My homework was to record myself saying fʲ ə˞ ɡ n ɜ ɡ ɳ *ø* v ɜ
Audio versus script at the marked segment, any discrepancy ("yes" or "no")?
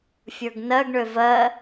no